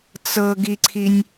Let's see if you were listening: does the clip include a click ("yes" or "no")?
yes